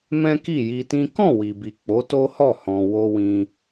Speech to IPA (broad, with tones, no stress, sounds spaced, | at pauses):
m ɛ̃˦ k i˦˨ j i˧ t ĩ˦ k ɔ̃˦˨ w i˨ b i˨ k͡p o˨˦ t o˦ h ɔ˦˨ h ɔ̃˨ w o˧ w ĩ˧